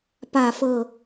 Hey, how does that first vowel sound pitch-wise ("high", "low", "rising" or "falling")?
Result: falling